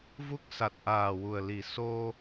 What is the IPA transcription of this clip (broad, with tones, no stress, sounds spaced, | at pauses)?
v u˦˥ k̚ s a˨˩ t̚ ʔ aː˨˩ w u˨˩ ə̯ l i˨˩ s o˧